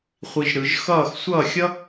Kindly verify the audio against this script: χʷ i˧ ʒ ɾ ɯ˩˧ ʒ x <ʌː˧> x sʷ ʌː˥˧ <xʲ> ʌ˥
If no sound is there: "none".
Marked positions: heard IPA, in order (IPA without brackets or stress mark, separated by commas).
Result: ʌː˥˧, xʲ